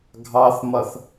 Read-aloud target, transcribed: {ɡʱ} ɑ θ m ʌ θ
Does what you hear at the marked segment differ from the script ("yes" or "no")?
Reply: no